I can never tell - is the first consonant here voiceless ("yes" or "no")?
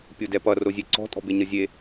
yes